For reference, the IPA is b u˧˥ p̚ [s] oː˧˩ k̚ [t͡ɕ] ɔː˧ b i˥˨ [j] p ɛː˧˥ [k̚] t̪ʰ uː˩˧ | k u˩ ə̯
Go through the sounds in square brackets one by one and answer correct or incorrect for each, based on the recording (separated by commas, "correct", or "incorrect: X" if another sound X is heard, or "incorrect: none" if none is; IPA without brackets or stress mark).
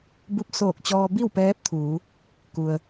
correct, correct, incorrect: w, incorrect: p̚